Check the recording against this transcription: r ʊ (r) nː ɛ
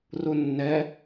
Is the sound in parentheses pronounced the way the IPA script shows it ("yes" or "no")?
no